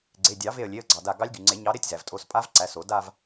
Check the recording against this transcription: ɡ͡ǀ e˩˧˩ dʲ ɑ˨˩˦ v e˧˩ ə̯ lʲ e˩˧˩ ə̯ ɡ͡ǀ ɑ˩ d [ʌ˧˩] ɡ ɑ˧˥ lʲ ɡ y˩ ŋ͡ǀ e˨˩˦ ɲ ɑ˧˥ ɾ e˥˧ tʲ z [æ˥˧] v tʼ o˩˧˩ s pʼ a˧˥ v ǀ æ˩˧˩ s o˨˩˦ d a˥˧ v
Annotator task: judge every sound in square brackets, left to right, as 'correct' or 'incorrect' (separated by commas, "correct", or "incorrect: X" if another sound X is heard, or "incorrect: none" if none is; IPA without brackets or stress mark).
incorrect: a˧˩, incorrect: æ˩